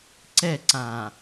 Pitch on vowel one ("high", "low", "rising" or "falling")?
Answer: falling